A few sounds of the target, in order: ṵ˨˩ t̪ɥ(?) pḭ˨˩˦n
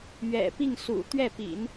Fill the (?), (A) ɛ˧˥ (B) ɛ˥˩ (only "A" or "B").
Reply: B